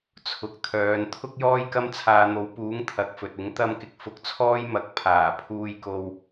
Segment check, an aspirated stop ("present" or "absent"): present